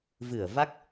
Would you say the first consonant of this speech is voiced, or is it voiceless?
voiced